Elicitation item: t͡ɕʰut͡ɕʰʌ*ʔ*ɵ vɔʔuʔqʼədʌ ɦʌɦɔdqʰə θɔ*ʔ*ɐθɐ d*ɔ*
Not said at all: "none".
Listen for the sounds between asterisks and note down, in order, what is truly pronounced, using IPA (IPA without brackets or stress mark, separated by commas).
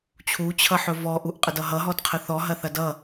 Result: ħ, ɦ, ʌ